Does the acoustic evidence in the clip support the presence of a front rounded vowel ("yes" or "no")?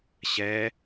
no